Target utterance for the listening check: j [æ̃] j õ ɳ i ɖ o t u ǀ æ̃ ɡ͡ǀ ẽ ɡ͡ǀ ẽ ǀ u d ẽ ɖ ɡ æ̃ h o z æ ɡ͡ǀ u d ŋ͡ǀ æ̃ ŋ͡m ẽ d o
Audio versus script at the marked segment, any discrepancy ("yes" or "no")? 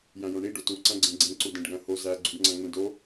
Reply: no